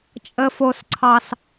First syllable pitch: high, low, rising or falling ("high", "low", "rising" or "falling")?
low